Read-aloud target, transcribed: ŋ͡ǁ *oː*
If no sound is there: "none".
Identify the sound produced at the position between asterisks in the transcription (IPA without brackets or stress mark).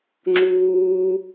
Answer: uː